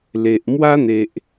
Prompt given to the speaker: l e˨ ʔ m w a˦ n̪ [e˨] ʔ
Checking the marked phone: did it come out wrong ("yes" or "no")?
no